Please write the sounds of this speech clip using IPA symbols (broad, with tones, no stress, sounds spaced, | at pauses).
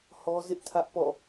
h ɔ˦ z ɪ˦ ʔ tʰ ä˦ ʔ p ɔ̰˦˨